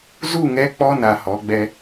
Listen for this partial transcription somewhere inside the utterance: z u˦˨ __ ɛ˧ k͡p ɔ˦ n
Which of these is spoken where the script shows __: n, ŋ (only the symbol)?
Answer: ŋ